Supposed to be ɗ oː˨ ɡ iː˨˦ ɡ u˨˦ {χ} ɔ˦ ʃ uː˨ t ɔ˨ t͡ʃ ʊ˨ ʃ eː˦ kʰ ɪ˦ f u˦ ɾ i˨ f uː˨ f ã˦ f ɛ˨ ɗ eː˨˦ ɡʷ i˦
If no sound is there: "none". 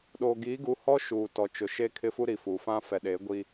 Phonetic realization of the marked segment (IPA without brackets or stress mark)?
h